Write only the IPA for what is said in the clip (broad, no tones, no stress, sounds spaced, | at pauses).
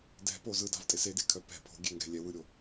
d ɛ̤ p o z ɯ d a̤ v tʼ e s e d e kʰ œ p ɛ̤ pʰ o̤ ɡʲ e ŋ ɡ ɛ̤ lʲ ɛ w ɯ ɾʲ o